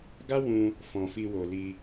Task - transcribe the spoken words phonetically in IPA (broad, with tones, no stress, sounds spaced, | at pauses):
ɡ a˦ w ũ˧ | f ɔ̃˨ f i˧ w o˨ l i˧